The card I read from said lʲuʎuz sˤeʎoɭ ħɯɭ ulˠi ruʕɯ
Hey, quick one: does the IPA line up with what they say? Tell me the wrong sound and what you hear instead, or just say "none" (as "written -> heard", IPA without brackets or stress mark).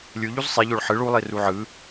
none